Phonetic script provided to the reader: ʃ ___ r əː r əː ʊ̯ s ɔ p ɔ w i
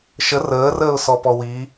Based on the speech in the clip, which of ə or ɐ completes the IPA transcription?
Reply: ə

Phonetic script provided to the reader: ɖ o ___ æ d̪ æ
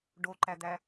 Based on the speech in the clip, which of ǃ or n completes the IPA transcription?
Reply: ǃ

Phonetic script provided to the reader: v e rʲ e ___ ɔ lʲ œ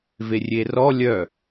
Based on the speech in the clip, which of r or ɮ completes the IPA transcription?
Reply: r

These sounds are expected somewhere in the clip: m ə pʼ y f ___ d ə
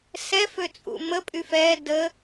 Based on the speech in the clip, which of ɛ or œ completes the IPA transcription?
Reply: ɛ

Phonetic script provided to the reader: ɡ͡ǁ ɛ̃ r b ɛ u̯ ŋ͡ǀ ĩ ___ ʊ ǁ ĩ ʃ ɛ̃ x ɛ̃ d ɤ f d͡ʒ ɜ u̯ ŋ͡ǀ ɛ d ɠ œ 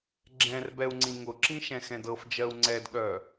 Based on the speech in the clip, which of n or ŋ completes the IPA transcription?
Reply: ŋ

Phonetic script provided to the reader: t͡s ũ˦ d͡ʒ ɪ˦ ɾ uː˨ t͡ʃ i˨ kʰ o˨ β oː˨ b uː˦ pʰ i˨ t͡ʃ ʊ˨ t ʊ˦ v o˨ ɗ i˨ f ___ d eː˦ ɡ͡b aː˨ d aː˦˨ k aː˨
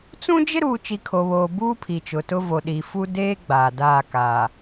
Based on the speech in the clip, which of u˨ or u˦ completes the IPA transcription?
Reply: u˦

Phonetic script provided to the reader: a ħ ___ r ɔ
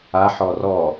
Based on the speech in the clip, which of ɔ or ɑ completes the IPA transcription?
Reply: ɔ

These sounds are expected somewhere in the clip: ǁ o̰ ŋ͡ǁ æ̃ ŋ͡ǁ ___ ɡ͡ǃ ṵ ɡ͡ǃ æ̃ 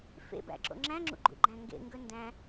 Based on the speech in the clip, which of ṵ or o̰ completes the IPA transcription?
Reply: ṵ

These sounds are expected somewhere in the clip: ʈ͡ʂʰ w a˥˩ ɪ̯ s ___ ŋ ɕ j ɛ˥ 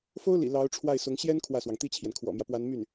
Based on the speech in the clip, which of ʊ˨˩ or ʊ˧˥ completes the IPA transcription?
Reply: ʊ˧˥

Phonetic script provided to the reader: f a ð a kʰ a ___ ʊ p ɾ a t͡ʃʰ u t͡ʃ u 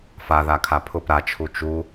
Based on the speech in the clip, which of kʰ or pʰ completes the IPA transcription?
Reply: pʰ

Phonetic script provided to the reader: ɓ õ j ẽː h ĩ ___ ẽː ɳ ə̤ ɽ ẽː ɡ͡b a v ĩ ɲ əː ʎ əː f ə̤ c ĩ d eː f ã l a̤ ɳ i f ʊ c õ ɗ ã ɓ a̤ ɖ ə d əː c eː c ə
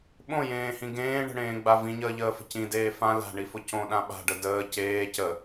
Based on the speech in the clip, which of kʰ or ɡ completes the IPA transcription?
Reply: ɡ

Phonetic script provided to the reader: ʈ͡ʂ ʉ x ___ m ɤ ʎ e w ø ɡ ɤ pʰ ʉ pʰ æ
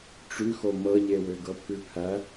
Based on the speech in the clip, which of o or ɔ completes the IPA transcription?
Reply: o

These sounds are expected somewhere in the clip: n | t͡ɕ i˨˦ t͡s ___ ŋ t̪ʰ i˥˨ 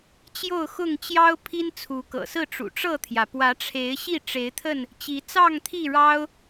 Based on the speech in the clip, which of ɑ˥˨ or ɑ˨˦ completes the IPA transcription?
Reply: ɑ˥˨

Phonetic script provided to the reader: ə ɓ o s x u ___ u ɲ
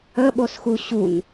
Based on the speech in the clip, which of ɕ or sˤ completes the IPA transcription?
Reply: ɕ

